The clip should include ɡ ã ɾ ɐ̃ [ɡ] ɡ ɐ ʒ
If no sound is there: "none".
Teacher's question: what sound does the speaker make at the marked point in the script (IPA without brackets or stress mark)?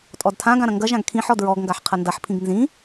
ŋ